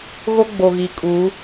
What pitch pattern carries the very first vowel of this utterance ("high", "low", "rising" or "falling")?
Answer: high